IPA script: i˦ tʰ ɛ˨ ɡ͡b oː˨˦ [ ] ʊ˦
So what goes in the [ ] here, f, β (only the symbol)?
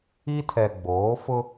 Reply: f